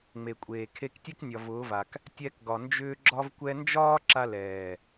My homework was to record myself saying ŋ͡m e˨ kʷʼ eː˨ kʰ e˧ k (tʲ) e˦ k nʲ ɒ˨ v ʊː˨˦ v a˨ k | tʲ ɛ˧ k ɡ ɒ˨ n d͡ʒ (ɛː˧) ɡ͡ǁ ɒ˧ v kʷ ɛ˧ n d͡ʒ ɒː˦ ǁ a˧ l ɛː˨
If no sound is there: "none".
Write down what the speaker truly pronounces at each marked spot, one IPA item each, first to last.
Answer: tʲ, ʏː˧

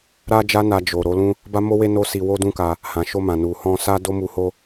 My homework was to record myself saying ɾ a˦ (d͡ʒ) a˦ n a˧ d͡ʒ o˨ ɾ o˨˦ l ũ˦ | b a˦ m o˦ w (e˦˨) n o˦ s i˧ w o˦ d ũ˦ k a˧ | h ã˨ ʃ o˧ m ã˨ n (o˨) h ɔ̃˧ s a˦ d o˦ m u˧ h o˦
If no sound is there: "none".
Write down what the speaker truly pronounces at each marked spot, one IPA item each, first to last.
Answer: d͡ʒ, e˦, u˨

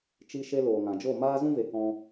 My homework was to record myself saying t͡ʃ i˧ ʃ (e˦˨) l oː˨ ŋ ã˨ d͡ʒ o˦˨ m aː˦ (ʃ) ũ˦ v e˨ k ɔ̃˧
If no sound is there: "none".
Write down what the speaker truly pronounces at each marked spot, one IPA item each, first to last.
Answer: e˧, z

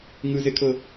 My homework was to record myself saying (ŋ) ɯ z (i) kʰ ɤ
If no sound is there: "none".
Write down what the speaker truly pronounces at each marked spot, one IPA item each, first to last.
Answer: ŋ, e

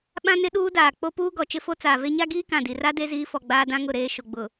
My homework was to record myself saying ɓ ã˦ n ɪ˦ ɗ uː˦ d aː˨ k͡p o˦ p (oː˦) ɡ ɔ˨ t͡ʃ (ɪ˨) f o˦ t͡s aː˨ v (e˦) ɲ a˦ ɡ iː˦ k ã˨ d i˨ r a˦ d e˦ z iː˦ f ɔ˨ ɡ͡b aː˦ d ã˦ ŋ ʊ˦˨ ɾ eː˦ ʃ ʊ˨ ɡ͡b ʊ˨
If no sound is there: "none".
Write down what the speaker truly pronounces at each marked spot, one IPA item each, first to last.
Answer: uː˦, ɪ˦, e˦

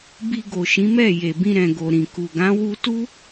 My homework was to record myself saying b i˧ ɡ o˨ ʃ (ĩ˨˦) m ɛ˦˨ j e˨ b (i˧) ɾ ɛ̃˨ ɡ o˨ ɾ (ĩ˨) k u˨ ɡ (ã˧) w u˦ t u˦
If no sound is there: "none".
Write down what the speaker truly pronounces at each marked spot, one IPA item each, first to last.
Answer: ĩ˨˦, ĩ˧, ĩ˨, ã˨˦

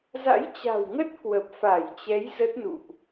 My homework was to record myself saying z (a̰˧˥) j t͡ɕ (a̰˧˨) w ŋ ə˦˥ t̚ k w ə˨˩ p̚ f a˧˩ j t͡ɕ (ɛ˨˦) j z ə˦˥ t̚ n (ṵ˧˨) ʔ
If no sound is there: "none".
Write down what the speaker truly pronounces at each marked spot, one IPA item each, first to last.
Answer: a̰˧˥, a̤˨˩, ɛ˨˦, ṵ˧˨

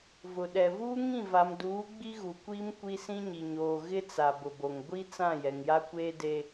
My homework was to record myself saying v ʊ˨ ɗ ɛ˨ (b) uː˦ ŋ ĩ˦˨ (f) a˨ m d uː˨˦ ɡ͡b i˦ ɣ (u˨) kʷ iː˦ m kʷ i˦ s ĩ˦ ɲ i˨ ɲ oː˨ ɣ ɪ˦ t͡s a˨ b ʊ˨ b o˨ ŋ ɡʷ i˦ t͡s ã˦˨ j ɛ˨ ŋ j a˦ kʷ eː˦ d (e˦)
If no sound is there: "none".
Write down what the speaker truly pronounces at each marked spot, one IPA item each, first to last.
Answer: v, v, u˨, e˦

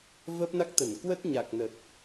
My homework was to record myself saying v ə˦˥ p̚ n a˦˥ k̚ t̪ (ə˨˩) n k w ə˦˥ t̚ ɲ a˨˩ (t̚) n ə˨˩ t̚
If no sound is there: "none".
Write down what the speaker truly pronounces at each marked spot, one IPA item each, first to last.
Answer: ə˧˩, k̚

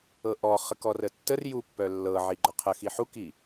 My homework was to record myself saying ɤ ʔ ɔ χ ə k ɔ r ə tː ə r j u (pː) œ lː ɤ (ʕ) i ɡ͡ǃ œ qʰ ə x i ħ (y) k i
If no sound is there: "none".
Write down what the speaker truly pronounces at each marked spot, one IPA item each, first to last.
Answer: pː, ʕ, u

